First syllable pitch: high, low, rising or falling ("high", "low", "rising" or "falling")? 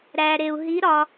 low